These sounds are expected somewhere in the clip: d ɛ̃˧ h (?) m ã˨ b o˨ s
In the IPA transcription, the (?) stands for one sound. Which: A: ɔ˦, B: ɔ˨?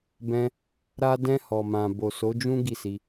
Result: B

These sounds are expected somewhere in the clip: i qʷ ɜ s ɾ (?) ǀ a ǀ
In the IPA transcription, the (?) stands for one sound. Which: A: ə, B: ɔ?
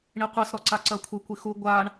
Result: B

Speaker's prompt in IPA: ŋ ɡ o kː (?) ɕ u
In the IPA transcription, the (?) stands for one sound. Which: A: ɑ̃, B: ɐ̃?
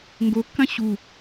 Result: B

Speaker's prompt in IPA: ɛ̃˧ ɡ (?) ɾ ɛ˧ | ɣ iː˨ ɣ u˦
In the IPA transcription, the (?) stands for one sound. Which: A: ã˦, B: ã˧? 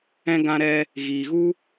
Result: B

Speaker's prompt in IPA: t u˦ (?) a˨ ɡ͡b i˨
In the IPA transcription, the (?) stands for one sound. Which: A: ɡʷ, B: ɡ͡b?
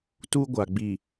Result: A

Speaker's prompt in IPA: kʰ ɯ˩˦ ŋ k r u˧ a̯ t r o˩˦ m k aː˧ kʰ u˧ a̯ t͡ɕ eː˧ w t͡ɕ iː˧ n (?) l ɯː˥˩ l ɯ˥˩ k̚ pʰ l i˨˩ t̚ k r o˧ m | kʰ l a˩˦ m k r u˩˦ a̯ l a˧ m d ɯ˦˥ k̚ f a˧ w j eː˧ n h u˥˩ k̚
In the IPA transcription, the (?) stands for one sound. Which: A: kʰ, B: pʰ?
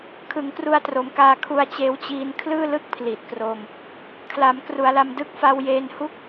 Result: A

